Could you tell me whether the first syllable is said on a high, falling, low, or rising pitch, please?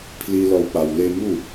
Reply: high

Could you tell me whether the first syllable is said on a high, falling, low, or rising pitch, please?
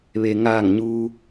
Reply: low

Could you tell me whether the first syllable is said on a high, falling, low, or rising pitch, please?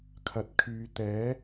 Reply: low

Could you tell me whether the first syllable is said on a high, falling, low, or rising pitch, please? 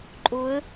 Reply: rising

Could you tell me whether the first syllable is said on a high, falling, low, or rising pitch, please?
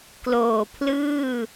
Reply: low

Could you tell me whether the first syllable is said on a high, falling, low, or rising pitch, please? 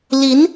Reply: rising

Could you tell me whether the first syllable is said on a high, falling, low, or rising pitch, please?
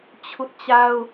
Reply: high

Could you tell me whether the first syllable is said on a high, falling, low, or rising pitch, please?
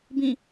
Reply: falling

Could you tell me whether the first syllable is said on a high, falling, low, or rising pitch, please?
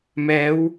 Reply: rising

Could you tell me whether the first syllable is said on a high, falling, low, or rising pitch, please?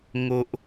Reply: low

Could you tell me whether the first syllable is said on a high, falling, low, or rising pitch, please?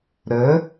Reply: rising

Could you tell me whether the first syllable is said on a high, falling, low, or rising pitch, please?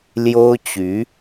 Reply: high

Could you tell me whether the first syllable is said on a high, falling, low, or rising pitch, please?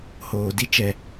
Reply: low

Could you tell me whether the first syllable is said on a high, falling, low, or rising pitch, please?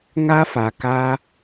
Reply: high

